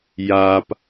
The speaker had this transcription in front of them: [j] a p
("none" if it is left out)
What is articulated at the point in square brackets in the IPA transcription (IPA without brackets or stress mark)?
j